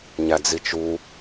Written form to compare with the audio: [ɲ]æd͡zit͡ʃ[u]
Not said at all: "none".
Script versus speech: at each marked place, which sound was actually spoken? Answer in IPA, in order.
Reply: ɲ, u

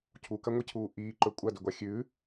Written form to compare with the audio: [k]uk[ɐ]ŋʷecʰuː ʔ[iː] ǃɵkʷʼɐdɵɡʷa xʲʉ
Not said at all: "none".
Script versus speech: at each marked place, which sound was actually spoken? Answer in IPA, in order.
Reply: cʰ, ɐ, iː

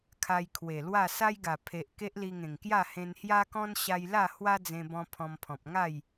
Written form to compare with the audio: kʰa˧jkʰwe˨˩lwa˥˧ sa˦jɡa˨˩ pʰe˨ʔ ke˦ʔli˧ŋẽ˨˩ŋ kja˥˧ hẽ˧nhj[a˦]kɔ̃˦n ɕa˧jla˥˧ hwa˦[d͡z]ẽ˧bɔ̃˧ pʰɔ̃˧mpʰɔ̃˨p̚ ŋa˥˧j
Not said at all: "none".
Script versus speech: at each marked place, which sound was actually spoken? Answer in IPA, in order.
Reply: a˦, d͡z

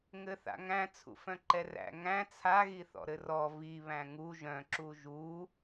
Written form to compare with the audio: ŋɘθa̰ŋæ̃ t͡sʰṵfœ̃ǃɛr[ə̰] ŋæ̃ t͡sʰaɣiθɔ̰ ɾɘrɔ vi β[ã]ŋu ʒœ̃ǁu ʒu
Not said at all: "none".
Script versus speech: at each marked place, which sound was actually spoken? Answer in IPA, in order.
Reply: æ̰, æ̃

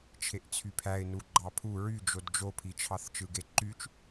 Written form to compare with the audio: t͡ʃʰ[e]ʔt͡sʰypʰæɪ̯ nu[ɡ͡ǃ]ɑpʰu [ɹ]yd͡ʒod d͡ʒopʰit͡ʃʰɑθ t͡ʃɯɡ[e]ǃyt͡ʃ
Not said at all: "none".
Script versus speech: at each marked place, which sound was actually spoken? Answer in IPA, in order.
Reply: e, ɡ͡ǃ, ɹ, e

